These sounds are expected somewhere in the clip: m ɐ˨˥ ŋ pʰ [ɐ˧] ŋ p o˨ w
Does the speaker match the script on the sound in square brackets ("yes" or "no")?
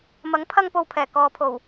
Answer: yes